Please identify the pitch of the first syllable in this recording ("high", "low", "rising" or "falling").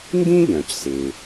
high